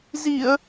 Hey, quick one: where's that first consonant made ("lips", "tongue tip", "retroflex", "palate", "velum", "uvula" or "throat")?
tongue tip